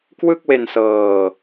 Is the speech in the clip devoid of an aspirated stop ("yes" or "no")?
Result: yes